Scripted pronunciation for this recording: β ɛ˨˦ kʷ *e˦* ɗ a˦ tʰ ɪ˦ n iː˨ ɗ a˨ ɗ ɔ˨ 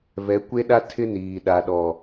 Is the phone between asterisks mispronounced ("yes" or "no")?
no